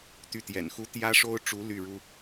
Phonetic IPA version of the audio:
t̪ y˥˩ t̪ j ɛ̰˨˩ n x u˥ t̪ j ä˥ ʂ o˥ ʊ̯ ʈ͡ʂ u˧˥ l y˥˩ ɻ u˥

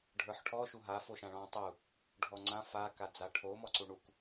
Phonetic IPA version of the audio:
ɖʱ ə˞ ħ ʈʰ ɔ ʃ u ɦ a f o ʃ ã ɭ ɔ̃ tˤ u | ɖʱ ɔ ŋ͡ǀ ã f a k a d͡z a ʈʰ o m ɔ ǀ u ɳ u k

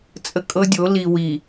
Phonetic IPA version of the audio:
t͡sʼ ə˦ kʼ ɤ˦ dʲ o˨˦ l i˨ w i˨

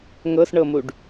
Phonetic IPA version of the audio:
ŋ ɤ s ɳ ɤ m u ɖ

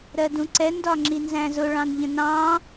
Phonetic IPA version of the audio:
ɾ ɜ d ũ ǀ ɛ n d ɒ ŋ͡ǁ i n z æ̃ z ʊ ɭ ɑ̃ n ʎ ə̃ n ɑ̃

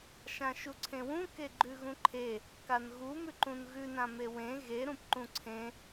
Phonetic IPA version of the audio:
ʃ ã ʃ u ǀʰ ẽ w ũ k e ɡ͡ǃ ʉ ɣ ũ ǃʰ e | k a n ɣ u m ʉ ǃ ũ n ɣ ʉ n ã m e w ẽ ɣ e ɾ ũ p ǃ ũ ǀʰ ẽ

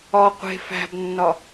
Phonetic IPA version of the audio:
ɒ qʷ e̤ f æ̤ b nː ɒ

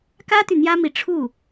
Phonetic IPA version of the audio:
k ä˥ t̪ y˨ n̪ j ä˥ m i˧˥ ʈ͡ʂʰ u˥˩

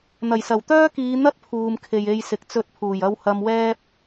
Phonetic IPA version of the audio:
n̪ ɐ˨˩ j s ɐ˨˩ w t̪ œː˥ k iː˨˧ n̪ ɐ˥ t̚ pʰ uː˨ m kʰ e˨ j e˨ j s ɪ˨ k̚ t͡s ɵ˧ t̚ pʰ uː˨˩ j ɐ˧ w h ɐ˧ m w ɛː˥ p̚

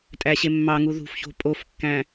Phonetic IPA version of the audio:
tʼ æ ɕ e mː ɑ ŋ u ð ṳ f ç o̤ pʼ o f kː æ̃

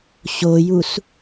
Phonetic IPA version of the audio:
ɕ o j u s

